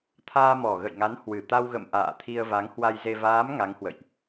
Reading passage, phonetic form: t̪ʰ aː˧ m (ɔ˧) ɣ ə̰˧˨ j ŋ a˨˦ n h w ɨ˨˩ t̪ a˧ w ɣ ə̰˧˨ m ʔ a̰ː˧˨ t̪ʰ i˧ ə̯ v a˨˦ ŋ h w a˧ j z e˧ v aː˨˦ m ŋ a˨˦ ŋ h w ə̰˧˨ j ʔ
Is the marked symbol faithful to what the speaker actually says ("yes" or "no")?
no